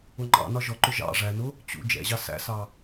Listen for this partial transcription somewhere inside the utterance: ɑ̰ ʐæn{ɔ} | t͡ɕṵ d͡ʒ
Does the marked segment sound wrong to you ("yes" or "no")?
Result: yes